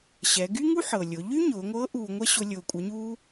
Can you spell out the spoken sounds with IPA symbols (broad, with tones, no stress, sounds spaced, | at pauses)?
ɕ ɛ˩˧ ɡ y˥ ŋ u˥ ħ ɤ˩ lʲ ʊ˩˧ ʎ y˥ ɲ ʊː˩˧ ŋʷ ɤː˧˥ ʔ uː˧ ŋʷ ɛ˥ ɕ ʊ˧ lʲ ʊː˧ kʷʼ ɛ˧˥ ɲ u˥